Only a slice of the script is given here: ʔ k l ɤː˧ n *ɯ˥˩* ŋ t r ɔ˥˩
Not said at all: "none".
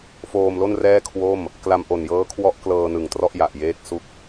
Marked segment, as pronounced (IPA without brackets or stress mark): ɯ˨˩